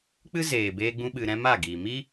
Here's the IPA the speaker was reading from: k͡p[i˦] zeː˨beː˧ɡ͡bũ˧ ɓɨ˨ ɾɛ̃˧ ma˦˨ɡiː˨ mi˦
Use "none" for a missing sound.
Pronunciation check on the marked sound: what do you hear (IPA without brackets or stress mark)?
ɨ˦